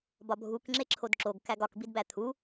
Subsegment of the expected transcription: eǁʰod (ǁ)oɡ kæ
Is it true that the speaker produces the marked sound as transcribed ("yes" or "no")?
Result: yes